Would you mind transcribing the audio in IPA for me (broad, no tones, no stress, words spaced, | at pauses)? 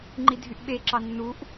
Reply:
ŋ͡ǃidʱyʔɓeǁɑ nːuʔ